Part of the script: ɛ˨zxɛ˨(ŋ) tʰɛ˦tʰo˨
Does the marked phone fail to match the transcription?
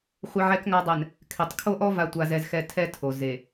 yes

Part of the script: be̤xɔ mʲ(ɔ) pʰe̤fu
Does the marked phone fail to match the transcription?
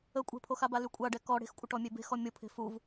yes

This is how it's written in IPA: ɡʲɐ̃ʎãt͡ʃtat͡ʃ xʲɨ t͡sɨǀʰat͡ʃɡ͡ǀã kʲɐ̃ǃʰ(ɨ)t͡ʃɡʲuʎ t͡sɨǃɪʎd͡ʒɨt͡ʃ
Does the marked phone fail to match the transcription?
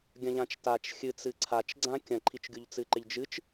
yes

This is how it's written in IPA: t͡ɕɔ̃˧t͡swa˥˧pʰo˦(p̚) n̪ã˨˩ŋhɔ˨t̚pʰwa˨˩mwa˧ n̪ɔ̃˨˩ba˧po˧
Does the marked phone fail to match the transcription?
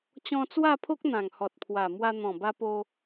yes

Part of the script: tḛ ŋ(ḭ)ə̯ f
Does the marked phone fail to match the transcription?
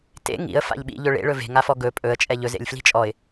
no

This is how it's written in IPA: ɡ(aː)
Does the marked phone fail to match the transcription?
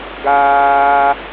no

